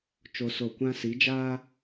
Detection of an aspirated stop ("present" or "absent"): absent